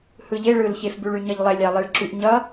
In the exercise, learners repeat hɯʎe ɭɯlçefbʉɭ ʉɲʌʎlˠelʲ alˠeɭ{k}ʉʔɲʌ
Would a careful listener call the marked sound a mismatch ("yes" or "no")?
yes